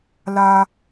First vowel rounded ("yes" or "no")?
no